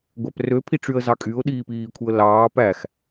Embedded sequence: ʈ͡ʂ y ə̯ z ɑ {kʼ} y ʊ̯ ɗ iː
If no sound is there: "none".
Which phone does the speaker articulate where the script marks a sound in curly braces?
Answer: kʼ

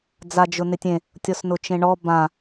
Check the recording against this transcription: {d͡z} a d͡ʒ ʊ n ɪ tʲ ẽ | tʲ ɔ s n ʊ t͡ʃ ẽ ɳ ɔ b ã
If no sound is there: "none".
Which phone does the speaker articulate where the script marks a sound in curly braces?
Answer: d͡z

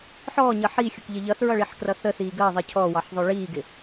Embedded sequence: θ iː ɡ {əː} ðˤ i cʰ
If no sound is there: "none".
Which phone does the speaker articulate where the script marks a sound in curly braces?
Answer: əː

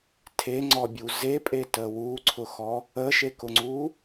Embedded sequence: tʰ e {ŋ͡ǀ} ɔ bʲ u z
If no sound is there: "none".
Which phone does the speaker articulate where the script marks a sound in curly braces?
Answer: ŋ͡ǀ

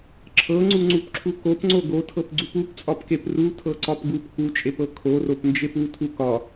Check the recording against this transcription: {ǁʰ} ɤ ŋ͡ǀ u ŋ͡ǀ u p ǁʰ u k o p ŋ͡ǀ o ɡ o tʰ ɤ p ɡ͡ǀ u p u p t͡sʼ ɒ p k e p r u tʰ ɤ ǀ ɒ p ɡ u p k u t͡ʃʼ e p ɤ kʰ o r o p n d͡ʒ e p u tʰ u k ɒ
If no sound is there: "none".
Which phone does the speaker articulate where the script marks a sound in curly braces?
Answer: ǁʰ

